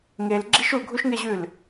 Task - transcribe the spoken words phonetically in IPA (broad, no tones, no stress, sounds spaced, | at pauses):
ŋ e l ɡ͡ǁ i ʃ u ɡʱ u ʃ ŋ e ʑ ʉ l